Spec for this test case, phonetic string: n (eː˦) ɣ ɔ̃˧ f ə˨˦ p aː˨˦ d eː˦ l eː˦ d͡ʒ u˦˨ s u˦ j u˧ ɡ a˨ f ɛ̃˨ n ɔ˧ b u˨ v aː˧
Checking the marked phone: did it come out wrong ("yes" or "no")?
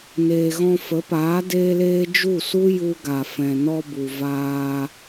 yes